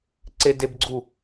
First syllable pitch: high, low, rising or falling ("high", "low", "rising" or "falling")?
high